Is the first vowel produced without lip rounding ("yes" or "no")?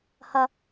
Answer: yes